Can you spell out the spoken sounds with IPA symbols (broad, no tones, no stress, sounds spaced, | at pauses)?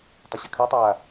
tˤ ə ɕ ɘ kʰ ɜ tˤ ɘ w a